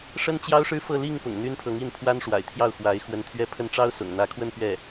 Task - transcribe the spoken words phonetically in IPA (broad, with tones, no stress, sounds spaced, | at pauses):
ʂ ə˥ n t͡ɕ j ɑ˥ ʊ̯ ʂ ɻ̩˥˧ f ɤ˥˧ l i˥˩ ŋ p ʊ̰˨˩ ŋ n̪ y˥ n pʰ ɤ˧˥ ŋ i˥˩ n pʰ w a˥ n ʂ w a̰˨˩ ɪ̯ t̪ʰ j ɑ˥˩ ʊ̯ x w a˧˥ ɪ̯ x w ə˧˥ n t̪ʰ ɥ ɛ˥ pʰ ə˥ n ʈ͡ʂ ɑ˥ ʊ̯ s ʊ̰˨˩ ŋ n̪ ä˧˥ kʰ w ə˥˧ n p ɥ ɛ˥˩